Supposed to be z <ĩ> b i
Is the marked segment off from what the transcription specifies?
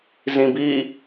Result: no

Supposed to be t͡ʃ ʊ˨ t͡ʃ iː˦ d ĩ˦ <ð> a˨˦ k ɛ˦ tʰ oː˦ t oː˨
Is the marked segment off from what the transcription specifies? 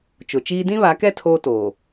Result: yes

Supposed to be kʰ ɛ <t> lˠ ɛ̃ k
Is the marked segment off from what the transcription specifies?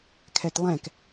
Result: no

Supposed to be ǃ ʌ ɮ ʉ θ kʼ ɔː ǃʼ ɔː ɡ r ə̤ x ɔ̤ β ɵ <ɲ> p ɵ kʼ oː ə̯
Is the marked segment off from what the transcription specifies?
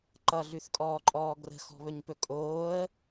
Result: no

